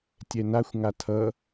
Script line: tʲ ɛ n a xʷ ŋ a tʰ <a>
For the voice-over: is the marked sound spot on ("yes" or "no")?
no